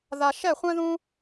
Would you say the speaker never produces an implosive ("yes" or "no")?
yes